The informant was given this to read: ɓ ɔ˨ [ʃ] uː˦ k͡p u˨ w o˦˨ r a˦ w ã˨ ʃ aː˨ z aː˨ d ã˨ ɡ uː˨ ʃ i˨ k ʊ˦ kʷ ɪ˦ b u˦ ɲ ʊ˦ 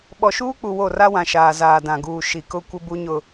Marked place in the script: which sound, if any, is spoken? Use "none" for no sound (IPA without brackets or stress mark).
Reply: ʃ